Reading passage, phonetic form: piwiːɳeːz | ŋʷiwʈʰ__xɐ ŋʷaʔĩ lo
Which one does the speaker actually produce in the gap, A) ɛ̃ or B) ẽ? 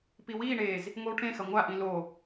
B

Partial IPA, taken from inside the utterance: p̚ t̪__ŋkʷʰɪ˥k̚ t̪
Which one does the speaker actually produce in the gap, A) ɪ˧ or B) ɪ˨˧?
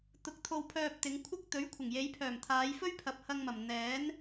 B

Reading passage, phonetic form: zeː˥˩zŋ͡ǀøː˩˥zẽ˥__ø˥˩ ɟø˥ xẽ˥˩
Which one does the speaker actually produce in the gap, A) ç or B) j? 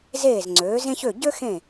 A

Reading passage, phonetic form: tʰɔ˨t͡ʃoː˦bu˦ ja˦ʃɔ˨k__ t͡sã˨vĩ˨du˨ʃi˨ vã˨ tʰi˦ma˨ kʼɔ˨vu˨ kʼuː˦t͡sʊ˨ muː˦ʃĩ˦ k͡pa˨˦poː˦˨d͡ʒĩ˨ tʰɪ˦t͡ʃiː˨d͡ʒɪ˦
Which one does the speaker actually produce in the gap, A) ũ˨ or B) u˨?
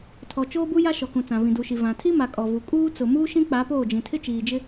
A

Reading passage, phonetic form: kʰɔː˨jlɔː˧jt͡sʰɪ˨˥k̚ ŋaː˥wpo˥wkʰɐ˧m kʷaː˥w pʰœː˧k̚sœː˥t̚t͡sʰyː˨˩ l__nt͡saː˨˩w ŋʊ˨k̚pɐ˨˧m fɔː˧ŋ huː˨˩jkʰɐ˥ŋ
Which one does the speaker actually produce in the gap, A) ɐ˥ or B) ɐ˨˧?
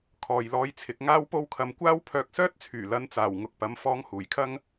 B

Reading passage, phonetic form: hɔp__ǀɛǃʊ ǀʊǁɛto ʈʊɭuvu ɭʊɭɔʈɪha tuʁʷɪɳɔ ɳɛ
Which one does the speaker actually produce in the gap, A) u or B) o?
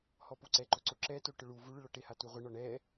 A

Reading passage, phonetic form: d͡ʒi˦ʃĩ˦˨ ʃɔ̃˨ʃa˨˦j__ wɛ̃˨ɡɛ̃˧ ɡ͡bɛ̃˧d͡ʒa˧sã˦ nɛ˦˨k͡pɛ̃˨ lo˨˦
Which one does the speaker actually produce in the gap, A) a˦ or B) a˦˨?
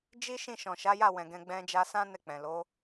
B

